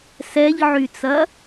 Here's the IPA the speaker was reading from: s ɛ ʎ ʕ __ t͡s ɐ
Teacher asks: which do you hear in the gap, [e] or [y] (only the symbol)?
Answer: y